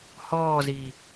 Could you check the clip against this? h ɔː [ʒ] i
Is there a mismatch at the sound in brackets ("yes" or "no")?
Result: yes